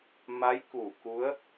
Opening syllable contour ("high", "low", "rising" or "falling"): rising